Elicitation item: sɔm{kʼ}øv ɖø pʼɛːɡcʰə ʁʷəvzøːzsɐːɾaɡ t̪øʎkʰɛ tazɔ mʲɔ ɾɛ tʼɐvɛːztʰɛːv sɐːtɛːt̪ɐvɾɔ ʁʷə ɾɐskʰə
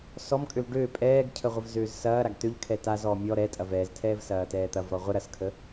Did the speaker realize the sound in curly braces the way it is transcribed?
yes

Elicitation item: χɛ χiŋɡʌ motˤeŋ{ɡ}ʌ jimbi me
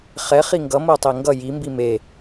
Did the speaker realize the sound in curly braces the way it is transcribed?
yes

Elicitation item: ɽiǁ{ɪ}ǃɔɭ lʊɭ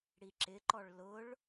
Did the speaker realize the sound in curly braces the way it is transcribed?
yes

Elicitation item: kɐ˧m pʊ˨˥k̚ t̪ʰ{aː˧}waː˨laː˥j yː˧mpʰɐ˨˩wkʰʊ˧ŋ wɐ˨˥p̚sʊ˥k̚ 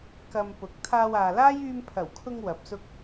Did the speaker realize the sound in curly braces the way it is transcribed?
yes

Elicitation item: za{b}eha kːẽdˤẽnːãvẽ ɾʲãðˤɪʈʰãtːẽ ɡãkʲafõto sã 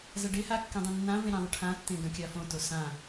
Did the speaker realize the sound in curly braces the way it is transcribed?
no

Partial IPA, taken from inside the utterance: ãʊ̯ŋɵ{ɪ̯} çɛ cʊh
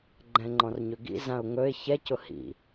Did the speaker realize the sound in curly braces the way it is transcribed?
yes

